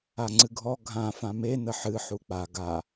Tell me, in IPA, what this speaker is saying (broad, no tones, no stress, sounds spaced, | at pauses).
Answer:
a ŋ͡ǀ ɨ ɡʱ ɔ ɡʱ ã f ã m e n ə ħ ɨ ħ u k͡p a ɡ a